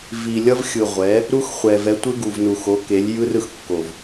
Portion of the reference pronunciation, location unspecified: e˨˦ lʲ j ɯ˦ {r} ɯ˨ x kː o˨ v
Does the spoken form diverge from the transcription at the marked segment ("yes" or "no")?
no